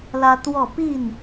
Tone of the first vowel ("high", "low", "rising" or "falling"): high